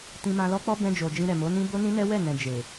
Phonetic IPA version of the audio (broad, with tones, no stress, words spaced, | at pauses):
tĩ˧mã˧lɔ˦ k͡pɔ˦bɛ̃˧d͡ʒo˨ d͡ʒĩ˧ɾɛ˨mo˨˦nĩ˦ bo˦nĩ˦nɛ˦ wɛ˦˨nɛ̃˨ d͡ʒe˨